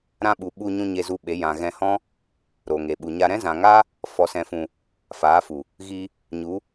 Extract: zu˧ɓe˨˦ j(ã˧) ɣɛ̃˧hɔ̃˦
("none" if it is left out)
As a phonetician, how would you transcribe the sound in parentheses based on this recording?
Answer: ã˨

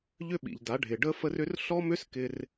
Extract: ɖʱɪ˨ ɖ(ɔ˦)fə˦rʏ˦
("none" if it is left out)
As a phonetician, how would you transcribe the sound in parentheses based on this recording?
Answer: ə˦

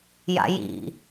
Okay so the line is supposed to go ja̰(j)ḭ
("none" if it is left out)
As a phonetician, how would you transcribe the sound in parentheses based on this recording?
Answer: j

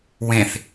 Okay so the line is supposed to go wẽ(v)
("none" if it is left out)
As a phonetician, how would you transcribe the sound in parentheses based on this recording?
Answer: θ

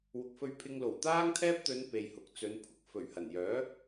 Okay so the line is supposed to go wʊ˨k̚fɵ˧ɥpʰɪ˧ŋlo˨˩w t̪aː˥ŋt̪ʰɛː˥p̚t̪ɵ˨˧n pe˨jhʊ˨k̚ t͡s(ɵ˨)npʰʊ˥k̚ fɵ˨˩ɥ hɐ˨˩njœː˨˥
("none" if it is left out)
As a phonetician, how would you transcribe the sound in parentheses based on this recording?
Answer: ɵ˨˧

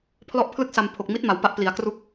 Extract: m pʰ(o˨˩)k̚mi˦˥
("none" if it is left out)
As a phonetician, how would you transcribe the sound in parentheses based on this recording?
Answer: o˨˩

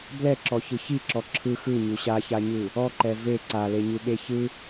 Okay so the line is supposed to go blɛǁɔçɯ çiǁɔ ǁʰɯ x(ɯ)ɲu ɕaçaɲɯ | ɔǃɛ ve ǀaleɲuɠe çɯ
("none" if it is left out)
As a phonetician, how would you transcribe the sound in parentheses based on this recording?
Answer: ɯ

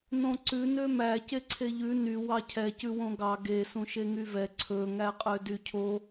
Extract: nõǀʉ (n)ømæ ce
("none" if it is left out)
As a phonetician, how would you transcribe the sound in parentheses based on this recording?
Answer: n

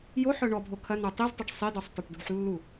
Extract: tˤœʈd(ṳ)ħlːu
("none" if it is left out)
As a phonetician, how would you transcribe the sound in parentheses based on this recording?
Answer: ṳ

